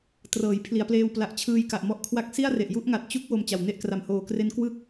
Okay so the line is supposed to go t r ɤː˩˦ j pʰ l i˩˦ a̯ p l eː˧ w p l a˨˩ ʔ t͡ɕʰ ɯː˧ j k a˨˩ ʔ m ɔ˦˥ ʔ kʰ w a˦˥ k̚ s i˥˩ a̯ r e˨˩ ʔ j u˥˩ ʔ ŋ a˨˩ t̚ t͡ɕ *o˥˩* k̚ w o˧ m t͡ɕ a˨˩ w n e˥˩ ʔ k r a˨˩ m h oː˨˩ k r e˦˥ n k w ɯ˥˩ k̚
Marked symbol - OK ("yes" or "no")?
no